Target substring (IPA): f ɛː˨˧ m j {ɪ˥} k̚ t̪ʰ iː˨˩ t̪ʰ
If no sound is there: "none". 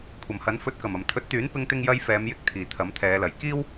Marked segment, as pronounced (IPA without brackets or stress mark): ɪ˧